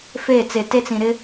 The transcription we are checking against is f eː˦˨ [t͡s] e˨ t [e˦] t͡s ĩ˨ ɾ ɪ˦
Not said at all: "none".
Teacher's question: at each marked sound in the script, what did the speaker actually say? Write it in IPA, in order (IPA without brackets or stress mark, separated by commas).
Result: t͡s, e˦